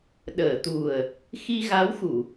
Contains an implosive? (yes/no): yes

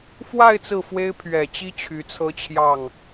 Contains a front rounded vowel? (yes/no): yes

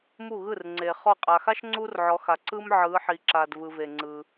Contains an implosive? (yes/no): no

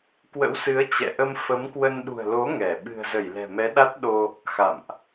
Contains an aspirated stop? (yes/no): no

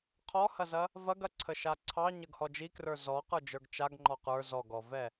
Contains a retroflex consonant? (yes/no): no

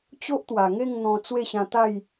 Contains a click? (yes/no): no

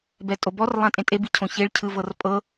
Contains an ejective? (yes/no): yes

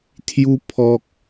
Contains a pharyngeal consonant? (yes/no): no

